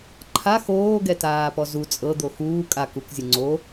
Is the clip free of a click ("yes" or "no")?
no